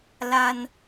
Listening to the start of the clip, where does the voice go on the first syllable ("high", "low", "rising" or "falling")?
high